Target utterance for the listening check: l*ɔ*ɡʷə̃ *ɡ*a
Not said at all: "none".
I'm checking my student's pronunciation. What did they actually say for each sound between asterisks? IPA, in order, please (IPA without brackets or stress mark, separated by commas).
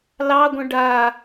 ɑ, ɖ